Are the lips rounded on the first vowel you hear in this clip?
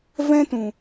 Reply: no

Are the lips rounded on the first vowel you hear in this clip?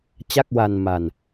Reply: no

